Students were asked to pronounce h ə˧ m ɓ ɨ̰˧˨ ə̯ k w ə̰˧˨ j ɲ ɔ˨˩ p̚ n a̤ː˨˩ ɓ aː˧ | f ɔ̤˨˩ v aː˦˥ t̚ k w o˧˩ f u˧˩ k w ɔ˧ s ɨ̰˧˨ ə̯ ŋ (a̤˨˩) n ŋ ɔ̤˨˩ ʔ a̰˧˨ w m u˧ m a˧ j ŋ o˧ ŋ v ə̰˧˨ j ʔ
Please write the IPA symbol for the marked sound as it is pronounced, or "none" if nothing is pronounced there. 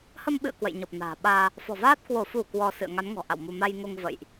a˨˦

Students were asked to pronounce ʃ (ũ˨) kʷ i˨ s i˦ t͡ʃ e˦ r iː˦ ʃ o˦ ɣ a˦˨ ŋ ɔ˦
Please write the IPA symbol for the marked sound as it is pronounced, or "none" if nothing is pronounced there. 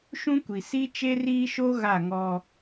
ũ˦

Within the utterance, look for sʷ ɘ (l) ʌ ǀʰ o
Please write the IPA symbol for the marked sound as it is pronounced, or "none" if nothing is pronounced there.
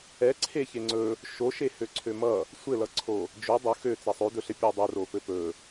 l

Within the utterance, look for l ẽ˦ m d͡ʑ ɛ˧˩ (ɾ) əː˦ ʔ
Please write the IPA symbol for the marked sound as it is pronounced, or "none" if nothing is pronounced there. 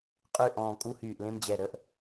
ɾ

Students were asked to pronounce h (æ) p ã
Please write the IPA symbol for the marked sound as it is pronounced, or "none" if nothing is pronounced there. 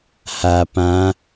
a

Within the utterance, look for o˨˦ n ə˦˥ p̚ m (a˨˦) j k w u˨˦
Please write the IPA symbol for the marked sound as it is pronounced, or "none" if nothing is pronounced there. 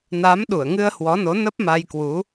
a˧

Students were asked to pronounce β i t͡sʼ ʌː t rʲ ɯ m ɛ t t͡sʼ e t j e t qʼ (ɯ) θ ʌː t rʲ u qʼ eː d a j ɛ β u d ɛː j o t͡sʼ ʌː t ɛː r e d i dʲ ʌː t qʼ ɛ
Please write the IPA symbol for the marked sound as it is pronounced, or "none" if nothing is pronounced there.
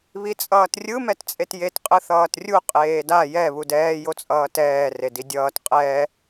ɯ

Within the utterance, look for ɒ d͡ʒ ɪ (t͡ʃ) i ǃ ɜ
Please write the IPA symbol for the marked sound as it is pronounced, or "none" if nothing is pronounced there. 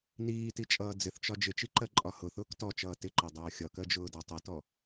t͡ʃ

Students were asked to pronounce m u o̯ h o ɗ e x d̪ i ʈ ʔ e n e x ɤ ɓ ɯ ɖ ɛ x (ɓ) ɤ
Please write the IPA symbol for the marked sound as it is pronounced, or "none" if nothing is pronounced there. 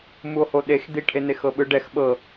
ɓ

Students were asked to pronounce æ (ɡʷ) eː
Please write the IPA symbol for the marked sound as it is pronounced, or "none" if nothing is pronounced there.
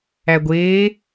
ɡʷ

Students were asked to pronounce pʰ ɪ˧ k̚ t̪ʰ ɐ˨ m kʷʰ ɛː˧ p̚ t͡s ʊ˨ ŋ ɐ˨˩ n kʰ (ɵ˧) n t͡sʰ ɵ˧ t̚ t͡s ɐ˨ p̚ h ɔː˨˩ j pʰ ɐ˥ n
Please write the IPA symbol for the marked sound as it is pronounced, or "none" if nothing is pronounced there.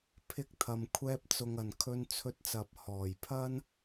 ɵ˧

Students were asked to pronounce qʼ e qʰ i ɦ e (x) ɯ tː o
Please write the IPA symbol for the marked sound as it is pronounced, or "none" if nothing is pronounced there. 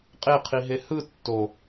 h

